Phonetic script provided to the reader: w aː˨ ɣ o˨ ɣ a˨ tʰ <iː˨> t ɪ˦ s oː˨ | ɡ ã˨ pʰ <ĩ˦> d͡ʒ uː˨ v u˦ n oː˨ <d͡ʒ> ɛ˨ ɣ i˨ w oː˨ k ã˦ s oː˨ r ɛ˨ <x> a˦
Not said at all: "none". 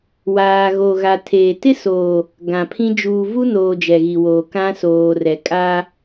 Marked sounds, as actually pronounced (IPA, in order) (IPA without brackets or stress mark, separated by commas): eː˨, ĩ˦, d͡ʒ, kʼ